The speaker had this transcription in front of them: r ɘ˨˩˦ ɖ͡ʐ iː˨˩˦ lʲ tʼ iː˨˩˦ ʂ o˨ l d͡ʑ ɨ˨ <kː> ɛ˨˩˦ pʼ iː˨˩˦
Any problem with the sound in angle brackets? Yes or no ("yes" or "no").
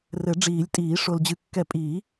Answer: no